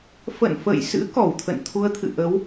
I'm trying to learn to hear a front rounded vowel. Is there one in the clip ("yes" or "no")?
no